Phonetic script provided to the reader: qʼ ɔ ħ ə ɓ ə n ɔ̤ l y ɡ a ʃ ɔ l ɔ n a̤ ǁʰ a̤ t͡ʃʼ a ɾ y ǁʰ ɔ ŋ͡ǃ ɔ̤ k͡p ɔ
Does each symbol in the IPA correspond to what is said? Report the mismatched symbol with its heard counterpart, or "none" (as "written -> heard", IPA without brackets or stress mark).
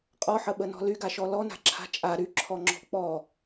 ŋ͡ǃ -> ŋ͡ǁ